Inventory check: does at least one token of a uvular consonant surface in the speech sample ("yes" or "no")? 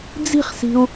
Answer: yes